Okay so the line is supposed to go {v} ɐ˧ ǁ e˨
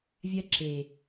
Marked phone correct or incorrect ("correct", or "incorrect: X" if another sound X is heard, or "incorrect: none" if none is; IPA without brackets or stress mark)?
incorrect: vʲ